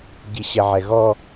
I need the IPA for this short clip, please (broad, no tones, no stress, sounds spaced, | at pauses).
ɟ i ɕ ɛ ʕ ɛ ɣ ɔ